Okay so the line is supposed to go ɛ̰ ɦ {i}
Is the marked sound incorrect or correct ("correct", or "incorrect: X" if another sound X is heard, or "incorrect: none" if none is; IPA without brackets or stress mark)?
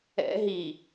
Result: correct